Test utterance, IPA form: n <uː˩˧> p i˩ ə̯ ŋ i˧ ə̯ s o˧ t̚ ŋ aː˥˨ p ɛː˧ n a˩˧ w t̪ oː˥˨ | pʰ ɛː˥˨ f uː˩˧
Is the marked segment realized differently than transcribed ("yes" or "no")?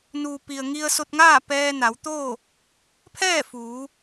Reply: yes